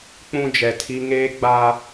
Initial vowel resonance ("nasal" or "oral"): nasal